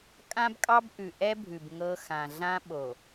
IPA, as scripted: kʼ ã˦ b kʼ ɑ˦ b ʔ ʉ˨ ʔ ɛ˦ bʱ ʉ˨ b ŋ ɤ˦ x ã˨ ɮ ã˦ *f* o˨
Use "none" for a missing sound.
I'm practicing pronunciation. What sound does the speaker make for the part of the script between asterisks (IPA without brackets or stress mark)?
ɓ